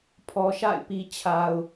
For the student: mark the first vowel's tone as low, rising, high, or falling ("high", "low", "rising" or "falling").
low